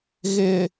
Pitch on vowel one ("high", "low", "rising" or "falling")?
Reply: low